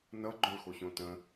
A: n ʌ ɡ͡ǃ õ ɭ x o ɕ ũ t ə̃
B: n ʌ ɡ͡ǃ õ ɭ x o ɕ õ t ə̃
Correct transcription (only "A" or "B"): B